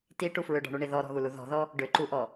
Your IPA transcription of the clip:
tiʈu fɹʏɖɔ̤ɳuɳi ðɔɾɔ̤ɣulu ðɔ̤ðɔ | ɖʏǃuʔɔ

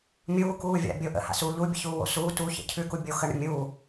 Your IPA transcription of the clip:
mʲuːkuː vʲa̰bʲo ʔə̰ha̰suː ʎu bʲə̰çuːwo̰ suː tuçə̰ cʰʉku bʲo xəɳə̰ mʲu

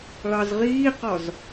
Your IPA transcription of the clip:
ɭɑzʁiːqɒz

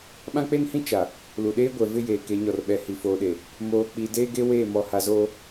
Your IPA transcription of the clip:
ɓã˦k͡pe˦nhĩ˦ t͡ʃa˨ | lu˨ɗeː˦ɡʷɛ˨ vɪ˦jeː˨ ke˨˦ɲɔ˨rɓɛ˨ hi˨foː˨ɗe˨ | moː˨k͡pi˨ deː˦ɡe˦weː˦˨ mɔ˨ha˨zoː˦

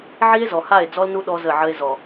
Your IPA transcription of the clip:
ʕi˦e̯ zɔ˨ha˦˨e̯ d͡zɔ˦lnu˦ ɗɔ˦ zə˦˨ʕə˦e̯ zɔ˨

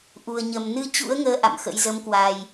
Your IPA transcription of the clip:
ʔu˨˩ə̯ɲə˨˩m nɨ˧t͡ɕṵ˧˥ə̯ŋəː˨˦ ʔa̰˧˨mxə̰˧˥j zə˨˦mkwa˨˩j

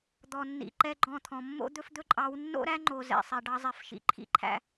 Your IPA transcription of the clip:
d̪ɔ˨nːḭ˨ ǃɛ˦ɡ͡ǃɔ̃˦˨t̪ʰɔ̃˨ mːo̰˦d̪ɵ˦fd̪ɵ˦ǃʼɑ˨˦w nːo̰˦ɾæ˦ ŋ͡ǃo˨ zɛ̰˨sˤɛ˨ɖɑ˦ zˤɛ˨fʃḭ˨ ǃʰḭ˨ǃʰæ̰˨

